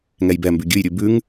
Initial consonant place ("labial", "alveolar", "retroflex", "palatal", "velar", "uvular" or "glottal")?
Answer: velar